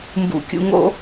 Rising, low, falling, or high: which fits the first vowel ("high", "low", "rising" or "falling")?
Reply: low